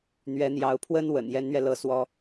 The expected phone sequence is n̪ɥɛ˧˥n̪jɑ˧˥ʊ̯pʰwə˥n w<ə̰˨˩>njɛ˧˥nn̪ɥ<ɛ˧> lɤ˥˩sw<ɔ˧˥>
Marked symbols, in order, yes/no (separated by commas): yes, yes, no